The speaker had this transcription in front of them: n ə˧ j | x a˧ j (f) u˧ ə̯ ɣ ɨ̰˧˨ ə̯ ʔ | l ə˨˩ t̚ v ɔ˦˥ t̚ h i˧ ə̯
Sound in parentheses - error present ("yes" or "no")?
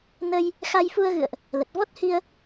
no